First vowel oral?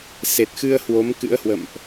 yes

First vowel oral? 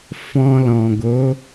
no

